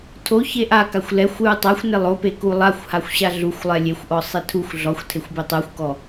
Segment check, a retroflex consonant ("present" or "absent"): absent